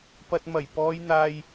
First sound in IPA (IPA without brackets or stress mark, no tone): p